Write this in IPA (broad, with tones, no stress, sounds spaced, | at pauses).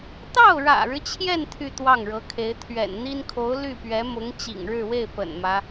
t̪ ɑ˥˩ ʊ̯ ɻ ä̰˨˩ ɻ ɻ̩˦ t͡ɕʰ j ɛ˥˧ n t̪ʰ y˥˧ t̪ w ɑ˥˩ ŋ ɻ ɤ˧˥ kʰ e˧˥ ɪ̯ t̪ʰ ɥ ɛ̰˨˩ n n̪ i˥ n kʰ o˧˥ ʊ̯ l y˥˩ p ɥ ɛ˧˥ m ʊ˧˥ ŋ t͡ɕ ḭ˨˩ ŋ ɻ ɻ̩˥˧ w e˥˩ ɪ̯ p ə̰˨˩ n m ä˦